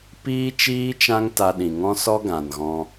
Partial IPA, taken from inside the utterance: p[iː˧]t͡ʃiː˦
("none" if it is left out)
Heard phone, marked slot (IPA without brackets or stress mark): iː˦